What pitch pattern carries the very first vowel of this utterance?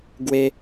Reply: high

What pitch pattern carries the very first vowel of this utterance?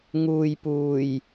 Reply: low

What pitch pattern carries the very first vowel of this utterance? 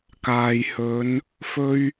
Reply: low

